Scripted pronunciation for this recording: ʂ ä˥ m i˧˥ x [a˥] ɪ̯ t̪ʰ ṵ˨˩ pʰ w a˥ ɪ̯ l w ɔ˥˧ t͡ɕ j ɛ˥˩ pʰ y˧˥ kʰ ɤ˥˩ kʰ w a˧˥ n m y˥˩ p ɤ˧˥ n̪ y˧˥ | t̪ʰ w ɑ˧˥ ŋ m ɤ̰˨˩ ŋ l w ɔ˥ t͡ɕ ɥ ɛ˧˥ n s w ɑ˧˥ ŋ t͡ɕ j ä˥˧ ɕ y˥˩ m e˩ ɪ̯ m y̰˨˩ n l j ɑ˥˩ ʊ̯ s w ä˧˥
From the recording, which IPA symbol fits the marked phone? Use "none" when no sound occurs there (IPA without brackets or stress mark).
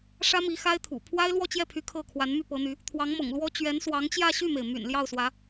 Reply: a˥